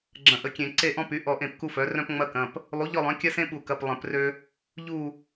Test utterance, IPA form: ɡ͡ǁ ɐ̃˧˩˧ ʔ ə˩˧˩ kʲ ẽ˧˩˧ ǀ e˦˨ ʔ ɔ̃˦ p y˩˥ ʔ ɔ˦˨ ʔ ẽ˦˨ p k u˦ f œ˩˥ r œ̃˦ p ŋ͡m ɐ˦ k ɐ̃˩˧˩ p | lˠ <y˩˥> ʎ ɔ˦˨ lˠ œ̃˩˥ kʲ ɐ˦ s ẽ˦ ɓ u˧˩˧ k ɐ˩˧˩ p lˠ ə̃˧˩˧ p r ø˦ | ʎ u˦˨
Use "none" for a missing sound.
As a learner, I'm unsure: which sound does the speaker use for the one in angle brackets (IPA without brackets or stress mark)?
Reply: u˩˥